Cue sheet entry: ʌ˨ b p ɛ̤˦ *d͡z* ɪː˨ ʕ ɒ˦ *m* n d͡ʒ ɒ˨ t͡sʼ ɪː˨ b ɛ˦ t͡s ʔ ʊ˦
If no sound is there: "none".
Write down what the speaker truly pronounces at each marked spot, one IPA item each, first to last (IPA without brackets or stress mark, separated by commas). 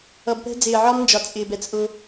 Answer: d͡z, m